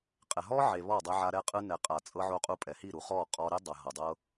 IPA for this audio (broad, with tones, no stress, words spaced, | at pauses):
qʼɛ˨ɦɔ˦ʕe˨ βɔ˦˨dˤɛ˧ʕa˧ ɾɛ˧qʼɯ˧nɛ˨ qʼa˨t͡sʼɤ˧ʕo˧qʼu˧ pʼɛ˨hi˦˨ɾu˨χɔ˦˨ qʼɔ˧ ɾe˧dˤa˨ ɦɤ˨dˤɤ˦